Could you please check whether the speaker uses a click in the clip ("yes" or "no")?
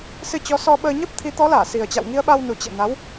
no